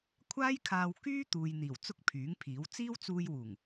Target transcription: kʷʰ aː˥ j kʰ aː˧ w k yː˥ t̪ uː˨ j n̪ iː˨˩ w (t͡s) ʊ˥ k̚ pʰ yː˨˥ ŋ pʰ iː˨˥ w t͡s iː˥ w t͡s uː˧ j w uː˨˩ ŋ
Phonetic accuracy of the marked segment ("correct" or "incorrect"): correct